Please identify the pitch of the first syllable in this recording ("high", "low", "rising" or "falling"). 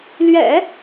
low